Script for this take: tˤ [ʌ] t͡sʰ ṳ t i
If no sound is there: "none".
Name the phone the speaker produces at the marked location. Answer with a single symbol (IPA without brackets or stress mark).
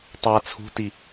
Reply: a